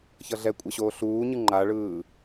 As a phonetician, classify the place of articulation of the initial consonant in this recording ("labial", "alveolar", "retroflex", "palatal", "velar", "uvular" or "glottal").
palatal